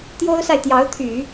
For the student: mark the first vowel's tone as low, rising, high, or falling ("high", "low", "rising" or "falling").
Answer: high